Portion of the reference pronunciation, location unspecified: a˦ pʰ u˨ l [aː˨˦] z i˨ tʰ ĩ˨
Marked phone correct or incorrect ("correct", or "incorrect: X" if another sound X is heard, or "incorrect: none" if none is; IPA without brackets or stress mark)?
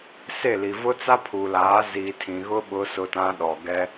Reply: correct